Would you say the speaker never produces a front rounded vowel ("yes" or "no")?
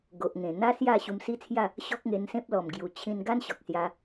yes